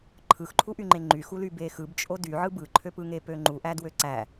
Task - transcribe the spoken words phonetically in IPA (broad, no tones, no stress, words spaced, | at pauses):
ǃʰɯxǃʰuʔyŋ͡ǃe ŋ͡ǃyxuly bexɯbt͡ʃʼo dyʕɯ bɯǃʰøpɯŋe pøŋ͡ǃuʔæ dwøǀæ